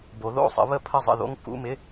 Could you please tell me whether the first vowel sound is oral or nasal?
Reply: oral